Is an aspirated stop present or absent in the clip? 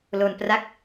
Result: absent